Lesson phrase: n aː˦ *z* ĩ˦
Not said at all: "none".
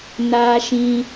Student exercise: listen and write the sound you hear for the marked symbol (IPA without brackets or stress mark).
ʃ